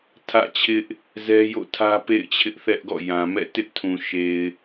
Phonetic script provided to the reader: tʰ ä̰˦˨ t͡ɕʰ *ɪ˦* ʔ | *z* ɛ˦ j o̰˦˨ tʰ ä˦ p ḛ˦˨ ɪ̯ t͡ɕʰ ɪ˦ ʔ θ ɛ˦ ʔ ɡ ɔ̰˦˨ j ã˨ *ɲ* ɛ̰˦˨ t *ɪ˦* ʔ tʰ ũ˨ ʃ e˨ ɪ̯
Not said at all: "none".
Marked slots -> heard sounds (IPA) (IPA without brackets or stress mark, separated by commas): ɪ˦, z, m, ɪ˦